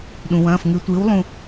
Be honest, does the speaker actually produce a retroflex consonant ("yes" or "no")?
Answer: no